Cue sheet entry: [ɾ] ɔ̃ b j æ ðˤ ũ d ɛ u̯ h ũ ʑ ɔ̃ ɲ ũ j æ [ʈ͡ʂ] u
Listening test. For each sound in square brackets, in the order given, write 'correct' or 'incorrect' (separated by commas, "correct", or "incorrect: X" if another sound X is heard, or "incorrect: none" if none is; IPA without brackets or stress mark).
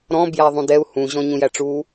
correct, correct